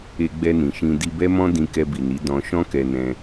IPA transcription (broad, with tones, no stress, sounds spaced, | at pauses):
e˧ ɡ͡b ɛ˧ n ĩ˨ ʃ ĩ˧ d i˧ b ɛ˦ m ɔ̃˦ d ĩ˧ k ɛ˧ b i˨ n i˨˦ d ɔ̃˧ ʃ ɔ̃˦ k ɛ˧ n ɛ̃˧